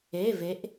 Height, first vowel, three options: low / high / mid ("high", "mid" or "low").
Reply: mid